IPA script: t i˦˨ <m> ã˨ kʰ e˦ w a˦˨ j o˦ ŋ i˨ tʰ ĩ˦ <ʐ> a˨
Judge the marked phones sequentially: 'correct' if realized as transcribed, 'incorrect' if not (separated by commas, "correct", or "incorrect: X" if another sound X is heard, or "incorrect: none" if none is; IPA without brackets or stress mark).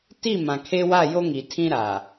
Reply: correct, incorrect: ɾ